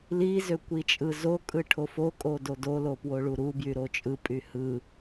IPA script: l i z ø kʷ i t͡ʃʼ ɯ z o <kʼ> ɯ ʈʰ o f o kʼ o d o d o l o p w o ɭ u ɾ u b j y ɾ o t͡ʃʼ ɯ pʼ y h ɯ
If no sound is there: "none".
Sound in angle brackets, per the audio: kʼ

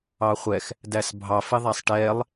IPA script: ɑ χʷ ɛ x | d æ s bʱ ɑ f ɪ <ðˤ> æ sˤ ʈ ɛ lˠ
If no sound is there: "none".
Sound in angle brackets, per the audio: ðˤ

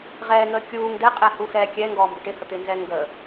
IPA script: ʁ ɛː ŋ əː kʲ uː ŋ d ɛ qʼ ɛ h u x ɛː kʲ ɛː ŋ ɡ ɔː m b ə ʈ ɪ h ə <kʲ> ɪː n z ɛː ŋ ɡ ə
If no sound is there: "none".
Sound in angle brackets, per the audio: t̪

